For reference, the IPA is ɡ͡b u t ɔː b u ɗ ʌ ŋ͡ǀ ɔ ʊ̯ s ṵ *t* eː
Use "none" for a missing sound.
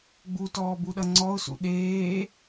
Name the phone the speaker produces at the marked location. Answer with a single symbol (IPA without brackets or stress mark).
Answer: ɗ